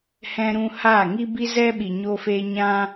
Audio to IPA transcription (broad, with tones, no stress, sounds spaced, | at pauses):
h ɛ̃˧ ɾ ũ˧ h aː˦˨ ŋ i˦ b i˦ z ɛ˦ ɓ i˨ ɲ oː˧ f eː˧ ɲ ã˦